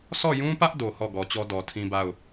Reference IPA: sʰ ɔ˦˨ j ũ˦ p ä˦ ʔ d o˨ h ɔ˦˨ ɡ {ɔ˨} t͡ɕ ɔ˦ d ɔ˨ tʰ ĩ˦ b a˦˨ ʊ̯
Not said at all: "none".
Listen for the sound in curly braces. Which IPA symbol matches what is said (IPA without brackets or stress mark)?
ɔ˨